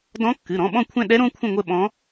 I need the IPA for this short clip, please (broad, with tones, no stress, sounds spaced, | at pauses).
d ɔ̃˧˥ kː ɨ˩˧˩ ɾ ɔ̃˩˧˩ ɓ ɔ̃˦˨ kʷʰ ɛ̃˦˨ ɗ ɛ˧˥ ɾ õ˧˥ kʷʰ ə̃˦˨ ŋʷ ə˦˨ ɓ ɔ̃˧˥